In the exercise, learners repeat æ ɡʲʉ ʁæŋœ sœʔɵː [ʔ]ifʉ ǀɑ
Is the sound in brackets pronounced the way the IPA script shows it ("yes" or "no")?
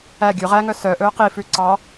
no